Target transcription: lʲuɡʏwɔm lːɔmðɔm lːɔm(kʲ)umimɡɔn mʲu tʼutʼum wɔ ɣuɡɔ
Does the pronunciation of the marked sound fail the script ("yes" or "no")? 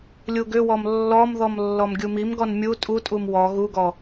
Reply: yes